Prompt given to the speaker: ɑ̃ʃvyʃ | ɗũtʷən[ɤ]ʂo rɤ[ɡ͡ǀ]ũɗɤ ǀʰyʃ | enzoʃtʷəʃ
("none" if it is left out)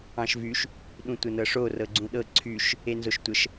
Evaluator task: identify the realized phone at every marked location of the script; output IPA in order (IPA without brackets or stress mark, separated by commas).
ɤ, ɡ͡ǀ